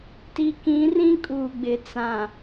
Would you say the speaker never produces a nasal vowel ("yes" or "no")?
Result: no